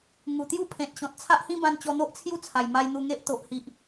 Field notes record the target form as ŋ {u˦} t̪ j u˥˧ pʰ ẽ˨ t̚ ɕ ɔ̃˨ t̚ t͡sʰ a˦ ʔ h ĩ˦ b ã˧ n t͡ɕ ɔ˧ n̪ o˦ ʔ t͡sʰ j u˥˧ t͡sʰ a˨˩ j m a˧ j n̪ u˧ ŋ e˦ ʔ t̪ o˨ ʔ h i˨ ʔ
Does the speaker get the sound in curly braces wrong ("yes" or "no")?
yes